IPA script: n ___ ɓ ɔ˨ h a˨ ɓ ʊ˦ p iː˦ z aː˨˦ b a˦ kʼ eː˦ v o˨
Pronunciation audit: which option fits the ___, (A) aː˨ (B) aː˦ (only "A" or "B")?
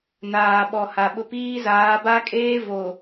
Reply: A